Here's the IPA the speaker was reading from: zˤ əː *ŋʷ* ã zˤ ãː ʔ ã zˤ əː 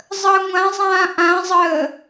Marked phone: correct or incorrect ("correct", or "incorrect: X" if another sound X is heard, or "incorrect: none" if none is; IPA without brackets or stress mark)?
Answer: correct